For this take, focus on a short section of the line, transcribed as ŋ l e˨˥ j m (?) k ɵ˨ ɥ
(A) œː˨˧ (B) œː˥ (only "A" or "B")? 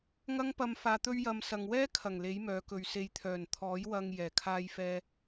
A